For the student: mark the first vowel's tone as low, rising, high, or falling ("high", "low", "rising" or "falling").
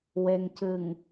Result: low